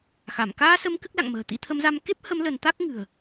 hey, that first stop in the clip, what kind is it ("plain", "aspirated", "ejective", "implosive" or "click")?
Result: plain